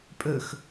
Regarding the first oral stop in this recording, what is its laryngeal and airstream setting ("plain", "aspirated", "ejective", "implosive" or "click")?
ejective